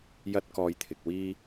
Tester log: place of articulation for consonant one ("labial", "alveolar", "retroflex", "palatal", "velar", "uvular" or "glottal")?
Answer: palatal